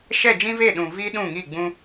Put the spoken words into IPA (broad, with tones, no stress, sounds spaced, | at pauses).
ʃ ɛ˦˨ d͡ʒ ĩ˦ v e˦˨ ɗ ũ˨ v i˦ ɗ ũ˦˨ ŋ i˦˨ ɡ͡b ũ˦